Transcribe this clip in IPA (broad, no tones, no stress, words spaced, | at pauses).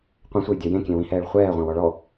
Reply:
qʷɛ̃sʷɛjdʲœ jẽkʲẽwĩhɛːɭ χʷɛːʁʷãwɔ ɭɔ